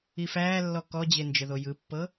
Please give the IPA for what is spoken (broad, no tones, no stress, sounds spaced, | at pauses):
i f æː lː ɔ k ɔ d͡ʑ e n d͡ʒ ə ð o j ɯ pː ɤ